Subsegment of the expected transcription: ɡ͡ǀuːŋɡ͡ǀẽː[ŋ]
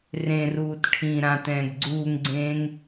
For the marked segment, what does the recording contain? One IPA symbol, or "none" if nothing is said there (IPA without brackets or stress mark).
ŋ